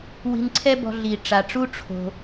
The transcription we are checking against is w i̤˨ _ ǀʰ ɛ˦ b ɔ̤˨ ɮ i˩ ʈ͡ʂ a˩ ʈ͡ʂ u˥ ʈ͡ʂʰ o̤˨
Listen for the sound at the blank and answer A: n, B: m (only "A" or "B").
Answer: A